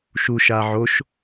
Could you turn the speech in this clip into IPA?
ʃ u ʃ a ʕ o ʃ

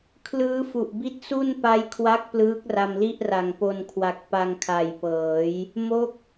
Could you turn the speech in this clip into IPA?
kʰ l ɯː˦˥ f u˨˩ ʔ b i˦˥ t̚ s u˥˩ n p a˦˥ j kʰ w a˦˥ k̚ p l ɯː˦˥ k̚ r a˧ m l i˥˩ ʔ r a˨˩ ŋ p o˧ n kʰ w a˨˩ k̚ p a˧ ŋ kʰ a˨˩ j p ɤː˩˦ j | m o˥˩ k̚

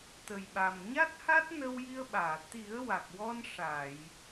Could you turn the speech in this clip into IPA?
t̪ ə˨˩ j ɓ a˨˩ m ɲ a˦˥ t̚ h a˦˥ t̚ n ə˧ w j i˧ ə̯ ɓ aː˨˩˨ t̪ i˨˩˦ ə̯ w a˨˩ k̚ w ɔ˧ n ʂ a˨˩˨ j

